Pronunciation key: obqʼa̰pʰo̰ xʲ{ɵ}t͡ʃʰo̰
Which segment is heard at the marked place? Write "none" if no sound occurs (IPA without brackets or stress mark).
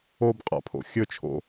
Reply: ɵ